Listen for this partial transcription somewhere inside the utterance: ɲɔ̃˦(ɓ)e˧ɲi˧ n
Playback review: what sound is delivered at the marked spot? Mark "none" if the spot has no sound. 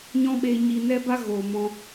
ɓ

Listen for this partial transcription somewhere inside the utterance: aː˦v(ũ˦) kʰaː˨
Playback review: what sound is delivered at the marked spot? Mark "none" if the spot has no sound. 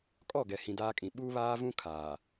ũ˦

